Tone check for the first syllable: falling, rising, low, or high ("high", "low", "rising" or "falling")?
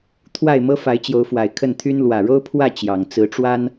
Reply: falling